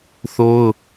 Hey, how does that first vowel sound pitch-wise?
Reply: high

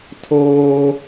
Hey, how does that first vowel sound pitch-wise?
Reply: high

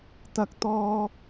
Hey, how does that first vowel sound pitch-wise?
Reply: high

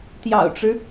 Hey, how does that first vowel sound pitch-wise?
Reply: low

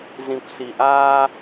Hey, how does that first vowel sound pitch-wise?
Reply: low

